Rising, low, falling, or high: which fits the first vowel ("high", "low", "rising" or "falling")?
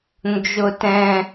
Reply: high